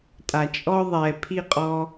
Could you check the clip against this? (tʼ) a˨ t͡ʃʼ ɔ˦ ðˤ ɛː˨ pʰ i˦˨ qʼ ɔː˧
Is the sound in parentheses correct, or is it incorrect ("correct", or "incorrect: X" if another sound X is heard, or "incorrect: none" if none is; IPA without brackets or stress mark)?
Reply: correct